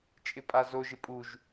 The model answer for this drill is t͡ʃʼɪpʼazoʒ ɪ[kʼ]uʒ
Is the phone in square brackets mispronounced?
yes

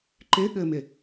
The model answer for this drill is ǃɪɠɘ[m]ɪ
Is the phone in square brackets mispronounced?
no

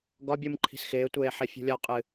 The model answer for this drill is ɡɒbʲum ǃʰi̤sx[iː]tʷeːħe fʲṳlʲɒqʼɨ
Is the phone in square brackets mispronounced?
yes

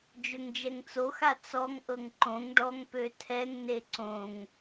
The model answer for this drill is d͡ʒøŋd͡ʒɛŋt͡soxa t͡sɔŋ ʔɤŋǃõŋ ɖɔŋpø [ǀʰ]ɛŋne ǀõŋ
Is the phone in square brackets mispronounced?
yes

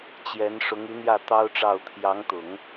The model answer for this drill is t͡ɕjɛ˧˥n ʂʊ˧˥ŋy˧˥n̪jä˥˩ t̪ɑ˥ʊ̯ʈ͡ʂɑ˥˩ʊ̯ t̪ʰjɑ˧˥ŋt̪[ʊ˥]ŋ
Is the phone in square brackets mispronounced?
yes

